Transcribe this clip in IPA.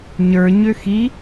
ɲ ə˞ ɲ ø x i

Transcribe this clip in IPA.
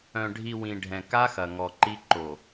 œ̃˨ ɖʱ i˨ w ĩ˨ ɖʱ ɛ̃˨ k a˦ x ɐ˨ ŋ ɔ˨ ǃ i˦ ǃ o˨

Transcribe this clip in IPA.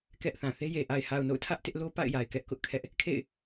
k ɛ˦ ʔ θ ã˨ θ e˦ j e˨ ʔ a˨ ɪ̯ h a˨ ʊ̯ n o̰˦˨ ʊ̯ tʰ ä˦ ʔ t ɪ˦ ʔ l o˦ p a̰˦˨ ɪ̯ j a˨ ɪ̯ k ɛ˦ ʔ k ʊ˦ ʔ kʰ ɛ˦ ʔ | kʰ ḛ˦˨ ɪ̯

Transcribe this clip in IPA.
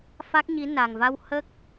f a˦˥ k̚ ɲ i˧˥ n a˨˩ ŋ v a˧ w h ə˦˥ k̚

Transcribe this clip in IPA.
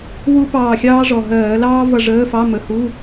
w u˥ p ɑː˦˨ xʲ ɑː˥ ʐ ɔ˨˩ ɦ ɜː˧˩˧ l ɑː˥ v ʌ˦˨ ʐ əː˧˥˧ f ɑ˧˥˧ m ə˨˩ h u˧˥˧

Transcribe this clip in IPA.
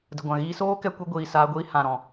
d ə˨ ɡʷ ã˨ ɣ iː˧ s oː˦ k ɛ˧ kʷ e˧ ɡʷ iː˨ s aː˧ ɡʷ iː˧ h ã˨ ɾ ɔ̃˨

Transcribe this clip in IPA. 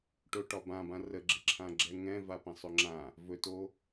ʈ o ʈ ɒ b ã b ã r ə ɡ͡ǁ ɪ ǁʰ ã ɡ͡ǁ ɛ ŋ ɛ̃ v a p ɛ̃ sˤ ɵ ŋ͡ǁ ã | v ɵ t o

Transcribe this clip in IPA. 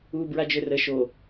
u b ɹ a d͡ʒ ø r ə ʃ o

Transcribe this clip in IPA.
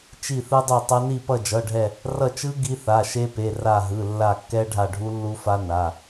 t͡ʃ i˦˨ θ ɯ˦˥ dˤ u˦˨ tˤ ʌ˦˥ n i˦˨ p ʌ˦˨ d͡ʒ ʌ˩˧˩ ɖʱ ɛ˦˨ | r ʌ˦˨ t͡ʃ ɯ˦˥ ɡ i˦˥ θ a˩˧˩ ʃ e˦˥ p e˩˧˩ r a˦˨ ɦ ɯ˩˧˩ lː a˦˨ kː ɛ˦˥ ɖʱ a˦˨ ɖʱ u˦˥ lː u˦˥ f a˦˥ n a˩˧˩

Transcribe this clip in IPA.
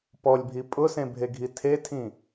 p ɔ lʲ bʱ i pʼ ʊ s ẽ bʱ e ɡʱ i tʰ e tʰ ĩ

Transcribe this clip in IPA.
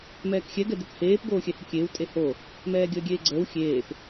m ɛː k xʲ ɛ ɡ ɛ d e k h eː p ɡ oː xʲ ɛ h ə kʲ eː w tʼ e h o | m ɛː ɡʲ əː ɡʲ eː ɡ͡ǀ əː w xʲ eː p

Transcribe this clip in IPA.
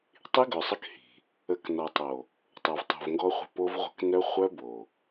tˤ i˦ ɡ œ˨ sˤ ə˦ k h i̤˨ | ə˨˦ k n ɔ˨ tˤ o˨ | tˤ o˨ v tˤ o̤˨ v ŋ ɡ ɔ˦ χʷ ə̤˦ p o˦ v ʁʷ ə̤˦ k n œ˦ χʷ œ˦ b o˨

